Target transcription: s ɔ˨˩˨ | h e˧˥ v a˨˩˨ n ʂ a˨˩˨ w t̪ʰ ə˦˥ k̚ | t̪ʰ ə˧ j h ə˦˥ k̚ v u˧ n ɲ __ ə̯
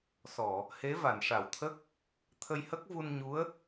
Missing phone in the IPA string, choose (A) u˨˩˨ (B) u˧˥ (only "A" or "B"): B